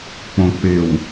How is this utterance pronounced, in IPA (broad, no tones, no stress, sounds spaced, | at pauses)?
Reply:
k͡p õ k͡p ɪ w